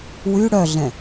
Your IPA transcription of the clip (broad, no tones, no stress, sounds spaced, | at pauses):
w y ɽ œ ɮ ɛ̃